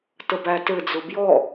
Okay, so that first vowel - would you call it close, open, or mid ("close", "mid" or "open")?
mid